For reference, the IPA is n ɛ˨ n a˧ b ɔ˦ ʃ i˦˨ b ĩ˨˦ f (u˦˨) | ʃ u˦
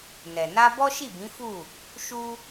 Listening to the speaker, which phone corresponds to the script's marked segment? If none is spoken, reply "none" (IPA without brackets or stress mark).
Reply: u˦˨